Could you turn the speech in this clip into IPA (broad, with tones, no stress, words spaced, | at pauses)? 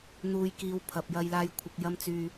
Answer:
n̪uː˨jkiː˨˧w pʰɐ˨p̚jɐ˧jlaː˧j kʷʰɪ˨k̚jɐ˧mt͡syː˨